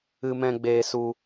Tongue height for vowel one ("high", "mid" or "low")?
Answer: high